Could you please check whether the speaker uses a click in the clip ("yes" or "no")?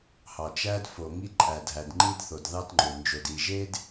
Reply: yes